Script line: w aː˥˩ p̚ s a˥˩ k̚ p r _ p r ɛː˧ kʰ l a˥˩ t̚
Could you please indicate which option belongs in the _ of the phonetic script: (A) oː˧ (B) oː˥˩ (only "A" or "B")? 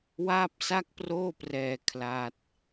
B